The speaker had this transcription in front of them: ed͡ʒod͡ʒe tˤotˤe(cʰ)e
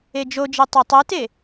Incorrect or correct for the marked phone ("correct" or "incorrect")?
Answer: incorrect